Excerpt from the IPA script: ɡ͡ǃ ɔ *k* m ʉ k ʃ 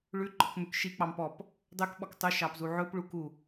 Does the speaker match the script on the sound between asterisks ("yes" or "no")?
yes